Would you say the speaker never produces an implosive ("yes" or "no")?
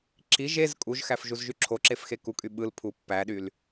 no